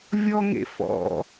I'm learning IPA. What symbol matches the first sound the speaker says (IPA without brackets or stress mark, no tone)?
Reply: vʲ